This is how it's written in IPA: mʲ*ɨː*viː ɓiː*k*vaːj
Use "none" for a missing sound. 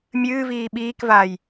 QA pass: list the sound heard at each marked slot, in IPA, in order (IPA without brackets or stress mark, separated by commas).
ɨː, k